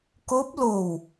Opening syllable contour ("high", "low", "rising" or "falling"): rising